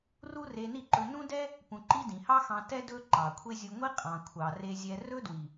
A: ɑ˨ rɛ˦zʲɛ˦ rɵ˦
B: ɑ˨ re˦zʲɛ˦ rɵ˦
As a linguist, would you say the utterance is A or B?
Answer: B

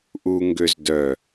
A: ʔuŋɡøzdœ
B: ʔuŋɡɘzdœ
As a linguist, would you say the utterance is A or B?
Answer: A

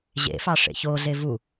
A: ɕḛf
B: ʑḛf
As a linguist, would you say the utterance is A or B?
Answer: B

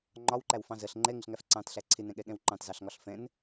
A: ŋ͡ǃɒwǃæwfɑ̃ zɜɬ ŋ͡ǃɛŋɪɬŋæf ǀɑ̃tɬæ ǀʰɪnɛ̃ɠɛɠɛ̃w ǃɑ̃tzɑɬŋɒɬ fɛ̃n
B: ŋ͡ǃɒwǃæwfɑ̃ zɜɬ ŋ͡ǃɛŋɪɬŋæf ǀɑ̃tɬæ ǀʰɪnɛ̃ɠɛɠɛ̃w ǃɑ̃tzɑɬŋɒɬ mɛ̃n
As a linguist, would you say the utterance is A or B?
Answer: A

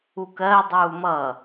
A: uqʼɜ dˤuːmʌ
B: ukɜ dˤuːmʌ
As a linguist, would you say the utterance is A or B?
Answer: B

